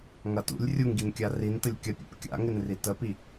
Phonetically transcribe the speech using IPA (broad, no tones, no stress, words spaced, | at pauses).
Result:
ŋɐtṵlʲ rʲuŋɡinkʲa rintəlʲ kʲɐpʲṵp kʲa̰ŋɪnri təpi